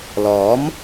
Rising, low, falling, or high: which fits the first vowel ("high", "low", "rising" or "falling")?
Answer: rising